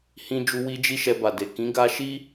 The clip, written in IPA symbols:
hĩ˦d͡ʒu˦ wi˦d͡ʒi˦ ʃɛ˧ba˨de˨ kĩ˨˦ɡa˧ʃi˦

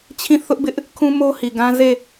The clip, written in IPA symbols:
t͡ɕʰĩ˦˨ θʊ˦ʔbɪ˦ʔ | kʰũ˦mo˦hi˨ɡã˦ ze˦˨

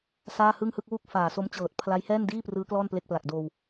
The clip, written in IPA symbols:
saː˥˩hɯ˥˩ŋhɯ˥˩k̚ wu˥˩k̚faː˨˩so˦˥mt͡ɕɤː˨˩t̚ pʰla˦˥j hɛː˥˩ndiː˥˩prɯː˦˥ klɔː˥˩nple˦˥k̚pla˨˩k̚doː˧w

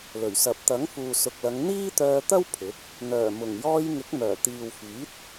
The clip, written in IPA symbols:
lɵ˨˩ɥ sɐ˨p̚ t̪ɐ˨˥ŋfuː˨ sʊ˨k̚lɐ˨˧ŋ n̪iː˥t̪œː˧t̪ɐ˥w pʰɪ˨˥k̚ | n̪œː˨˩mʊ˨˩ŋ jɔː˧j ŋɪ˨˥k̚mœː˨˩t̪iː˨wfiː˨˥t̚

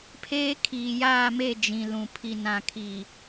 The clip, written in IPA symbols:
pʰeː˦ kʰiː˨jaː˦˨me˦˨ d͡ʒĩ˨lũ˨ pʰi˨nã˨kʰi˨

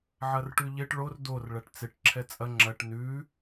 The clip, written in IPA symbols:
ʕɐrʈʉʎɪʈ ɭor dor ɭɐʈt͡sɪʈ ǁʰɛt͡sʼɐ ŋ͡ǁɐʈ nʉ

